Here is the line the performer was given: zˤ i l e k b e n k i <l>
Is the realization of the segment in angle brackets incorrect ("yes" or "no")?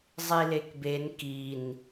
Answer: yes